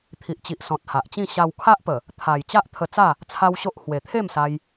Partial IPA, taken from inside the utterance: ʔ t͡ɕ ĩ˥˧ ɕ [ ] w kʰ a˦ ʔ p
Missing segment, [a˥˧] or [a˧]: a˧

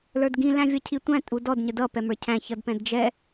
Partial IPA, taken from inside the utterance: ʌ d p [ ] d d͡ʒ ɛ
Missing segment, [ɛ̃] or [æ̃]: ɛ̃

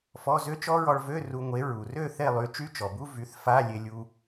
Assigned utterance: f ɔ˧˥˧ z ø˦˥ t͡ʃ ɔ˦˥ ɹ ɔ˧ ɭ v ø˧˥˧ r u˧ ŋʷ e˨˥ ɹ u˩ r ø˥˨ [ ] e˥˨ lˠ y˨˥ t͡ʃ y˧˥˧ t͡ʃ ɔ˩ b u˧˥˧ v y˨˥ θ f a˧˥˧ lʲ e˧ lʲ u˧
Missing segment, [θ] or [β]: θ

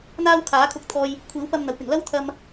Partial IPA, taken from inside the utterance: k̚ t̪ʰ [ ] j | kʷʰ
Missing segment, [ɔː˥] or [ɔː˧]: ɔː˧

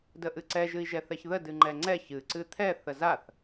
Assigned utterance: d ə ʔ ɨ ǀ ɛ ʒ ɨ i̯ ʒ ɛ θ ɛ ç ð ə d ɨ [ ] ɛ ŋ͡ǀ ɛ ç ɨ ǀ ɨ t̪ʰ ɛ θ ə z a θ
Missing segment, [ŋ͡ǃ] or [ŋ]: ŋ͡ǃ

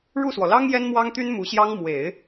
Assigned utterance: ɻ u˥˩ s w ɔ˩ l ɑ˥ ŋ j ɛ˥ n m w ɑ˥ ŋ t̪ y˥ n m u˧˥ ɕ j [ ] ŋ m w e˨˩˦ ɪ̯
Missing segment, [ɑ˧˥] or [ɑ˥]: ɑ˥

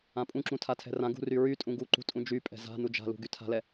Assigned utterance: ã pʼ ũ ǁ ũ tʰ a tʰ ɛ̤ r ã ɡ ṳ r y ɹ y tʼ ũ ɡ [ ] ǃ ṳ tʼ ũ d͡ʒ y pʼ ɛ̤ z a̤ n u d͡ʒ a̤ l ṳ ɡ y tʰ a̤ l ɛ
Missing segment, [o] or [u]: u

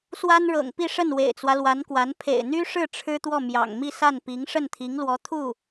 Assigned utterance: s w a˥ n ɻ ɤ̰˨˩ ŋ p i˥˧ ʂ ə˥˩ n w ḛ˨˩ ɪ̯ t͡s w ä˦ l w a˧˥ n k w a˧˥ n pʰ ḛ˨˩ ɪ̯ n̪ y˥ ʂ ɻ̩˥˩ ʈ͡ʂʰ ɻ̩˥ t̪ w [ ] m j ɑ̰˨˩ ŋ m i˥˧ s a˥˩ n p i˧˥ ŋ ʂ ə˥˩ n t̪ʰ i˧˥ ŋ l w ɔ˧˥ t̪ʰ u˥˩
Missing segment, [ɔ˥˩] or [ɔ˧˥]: ɔ˥˩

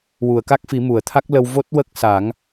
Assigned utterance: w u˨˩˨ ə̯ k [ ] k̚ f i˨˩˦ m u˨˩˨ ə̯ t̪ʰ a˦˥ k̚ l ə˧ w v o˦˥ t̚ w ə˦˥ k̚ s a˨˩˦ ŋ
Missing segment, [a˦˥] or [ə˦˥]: a˦˥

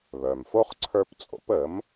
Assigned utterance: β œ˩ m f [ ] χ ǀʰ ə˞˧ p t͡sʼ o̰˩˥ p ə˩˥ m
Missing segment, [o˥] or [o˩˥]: o˥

